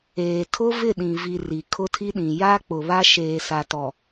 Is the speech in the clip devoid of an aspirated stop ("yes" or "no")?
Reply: no